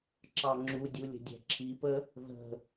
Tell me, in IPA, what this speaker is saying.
ǁ ɑ ŋ͡ǁ u dʲ u lʲ ə̤ dʲ ɛ̤ ǁʰ i p ə | ð ə̤

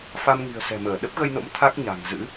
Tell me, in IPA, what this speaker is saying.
f a˧ m ŋ i̤˨˩ ə̯ s ɛ̤˨˩ m əː˧˩ ɗ ə˦˥ p̚ ɣ ə˧ j n o̰˧˥ m t̪ʰ a˦˥ k̚ ɲ a̤˨˩ ŋ z ɨ̰˧˥

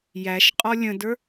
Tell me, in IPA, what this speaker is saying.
j æ ʃ qʼ ɔ lʲ ə̃ d ə˞

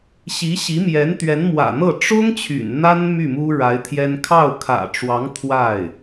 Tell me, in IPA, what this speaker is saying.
ɕ i˧˥ ɕ i˧˥ m j ɛ˧˥ n t̪ ɥ ɛ˧˥ n m w ä̰˨˩ n̪ ɤ˥˩ ʈ͡ʂ ʊ˥ ŋ t͡ɕʰ y̰˨˩ n n̪ a˥ n m y˥˩ m u˥ ɻ a˧˥ ɪ̯ t̪ʰ j ɛ˥ n kʰ ɑ˥˩ ʊ̯ kʰ ä̰˨˩ ʈ͡ʂ w ɑ˧˥ ŋ t̪ʰ w a˥˩ ɪ̯

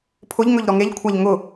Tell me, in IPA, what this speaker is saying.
pʰ ʊ ʎ ŋ ɵ ʎ ɾ ɔ ŋ e ʎ kʷʰ a ʎ ŋ ʊ

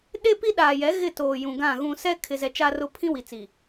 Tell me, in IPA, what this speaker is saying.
ɗ e˦ p i˦ ɗ aː˨ j ɛ˨˦ ɣ ɪ˦˨ t oː˨ j ũ˨ ɡ ã˦˨ ɣ ũ˦ s ɛ˦ kʰ ɪ˨ z ɛ˨ t͡ʃ a˦ r ʊ˦ pʰ ĩ˦ w i˨ t͡s i˨

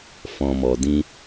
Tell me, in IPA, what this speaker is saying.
f ɔ̃˨ m ɔ˨ d ĩ˧

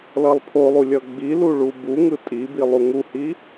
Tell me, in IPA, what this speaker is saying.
l ʌ lˠ pʰ o lˠ u lʲ ʌ ɡ͡b i l u ɭ u b u ŋ ɯ tʼ i b i lˠ u ŋ u h i

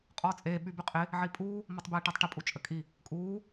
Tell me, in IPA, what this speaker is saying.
qʼ ɔː t͡sʼ eː ɓ y b y qʼ ɪ | ʕ i pʼ uː | m ɔ tˤ b eː ʈ əː tˤ ʈ ɪ pʼ u t͡ʃʼ ə kʼ i | kʼ uː

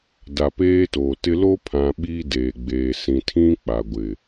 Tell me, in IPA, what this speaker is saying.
d a˨ p eː˦ t o˨ t ɪ˦ l o˦ pʰ ã˨ ɓ iː˦ d eː˨ ɡ͡b eː˨ s ĩ˨ tʰ ĩ˦ k͡p a˨ ɡʷ ɪ˨

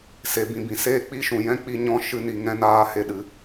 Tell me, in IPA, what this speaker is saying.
s e˨ b ĩ˨ b ĩ˨ s eː˦ k͡p i˦ ʃ ũ˨ j ɛ̃˦ k͡p i˦ ɲ ɔ̃˦ ʃ ɨ˦ n i˧ ŋ ɛ̃˦ n aː˦ h e˦ ɗ ɨ˨˦

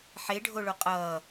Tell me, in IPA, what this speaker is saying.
ħ e ɖʱ o ɭ o qʼ ʌː

